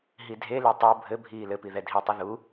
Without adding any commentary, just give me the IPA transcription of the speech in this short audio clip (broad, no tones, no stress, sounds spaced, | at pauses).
ɦ i dʱ e l e tˤ o bʱ ɘ bʱ iː l ɘ p i ð ɛ dʱ i tˤ ɨ ð u